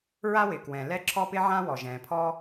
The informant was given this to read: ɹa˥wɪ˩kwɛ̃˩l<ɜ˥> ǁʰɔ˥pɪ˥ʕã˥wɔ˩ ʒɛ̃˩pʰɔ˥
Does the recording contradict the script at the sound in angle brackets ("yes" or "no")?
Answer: yes